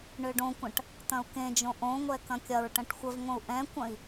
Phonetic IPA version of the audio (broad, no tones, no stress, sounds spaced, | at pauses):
ɳ ø ɖ õ kʷ ɐ̃ ʈ | t̪ ɐ̃ u̯ k ẽ d͡ʒ õ ʔ õ ŋʷ ɛ k ɐ̃ kʲ ɐ ɹ ʈ ɐ̃ ʈ xʷ ə v ŋʷ ə̃ u̯ ʔ ɛ̃ kʷ ɐ̃ i̯